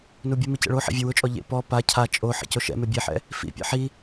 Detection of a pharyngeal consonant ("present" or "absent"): present